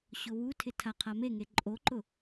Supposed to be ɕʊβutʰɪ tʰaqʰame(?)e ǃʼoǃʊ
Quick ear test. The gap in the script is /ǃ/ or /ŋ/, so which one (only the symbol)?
ŋ